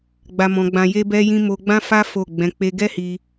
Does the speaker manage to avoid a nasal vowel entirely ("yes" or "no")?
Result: no